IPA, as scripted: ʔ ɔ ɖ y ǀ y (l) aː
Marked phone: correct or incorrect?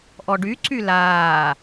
correct